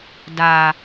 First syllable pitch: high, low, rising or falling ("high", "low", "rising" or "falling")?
low